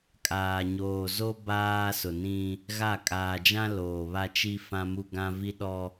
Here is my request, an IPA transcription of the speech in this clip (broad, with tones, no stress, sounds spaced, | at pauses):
kʼ aː˨ ɲ oː˨ z o˦ b aː˦ s ʊ˨ n ĩ˦ | ɣ a˦˨ kʼ aː˨ d͡ʒ ã˦ l oː˨ β a˦ t͡ʃ i˦ f ã˦ m u˦ ɡ ã˦ v i˦ ɗ ɔ˦